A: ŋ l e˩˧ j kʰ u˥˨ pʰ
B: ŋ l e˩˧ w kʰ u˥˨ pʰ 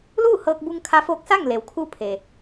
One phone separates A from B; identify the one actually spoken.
B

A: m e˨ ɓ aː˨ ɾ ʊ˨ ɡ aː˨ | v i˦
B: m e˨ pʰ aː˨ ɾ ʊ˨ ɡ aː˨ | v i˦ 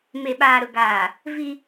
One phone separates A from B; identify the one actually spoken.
A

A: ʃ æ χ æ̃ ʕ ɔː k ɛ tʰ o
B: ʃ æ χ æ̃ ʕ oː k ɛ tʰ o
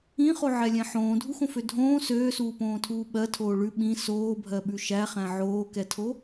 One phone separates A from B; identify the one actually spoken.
B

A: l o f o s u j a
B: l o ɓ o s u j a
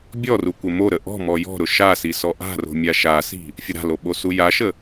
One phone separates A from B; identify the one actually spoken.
B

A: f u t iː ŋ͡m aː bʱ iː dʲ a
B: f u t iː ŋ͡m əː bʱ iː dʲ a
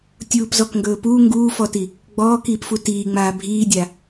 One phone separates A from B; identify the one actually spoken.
A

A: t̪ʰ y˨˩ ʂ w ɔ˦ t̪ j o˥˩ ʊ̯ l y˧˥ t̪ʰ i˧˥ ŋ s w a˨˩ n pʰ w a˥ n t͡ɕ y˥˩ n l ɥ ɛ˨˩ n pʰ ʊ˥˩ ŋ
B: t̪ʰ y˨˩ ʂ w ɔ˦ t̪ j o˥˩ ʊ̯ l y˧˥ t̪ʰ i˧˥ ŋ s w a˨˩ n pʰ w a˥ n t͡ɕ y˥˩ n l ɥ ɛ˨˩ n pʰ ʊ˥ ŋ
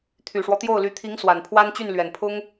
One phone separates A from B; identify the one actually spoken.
B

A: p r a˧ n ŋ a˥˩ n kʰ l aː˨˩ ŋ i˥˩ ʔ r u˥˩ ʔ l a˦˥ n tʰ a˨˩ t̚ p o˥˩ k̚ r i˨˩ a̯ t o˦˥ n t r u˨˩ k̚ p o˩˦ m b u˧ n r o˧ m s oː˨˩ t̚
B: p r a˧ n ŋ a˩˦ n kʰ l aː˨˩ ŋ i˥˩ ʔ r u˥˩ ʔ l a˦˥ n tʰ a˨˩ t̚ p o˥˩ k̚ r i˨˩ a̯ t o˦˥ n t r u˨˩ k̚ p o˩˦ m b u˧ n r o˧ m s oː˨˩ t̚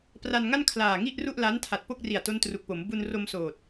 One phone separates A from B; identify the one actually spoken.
A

